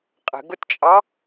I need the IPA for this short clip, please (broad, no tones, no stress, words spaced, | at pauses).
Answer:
qʼə̤ɡʊtt͡ʃʼɑ